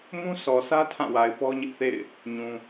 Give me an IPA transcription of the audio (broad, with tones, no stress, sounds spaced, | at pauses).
m ũ˦ sʰ ɔ˨ s ä˦ tʰ ã˦˨ w a˨ ɪ̯ p ɔ˦ ɲ ɪ˦ ʔ θ ḛ˦˨ ɪ̯ | ɲ ũ˨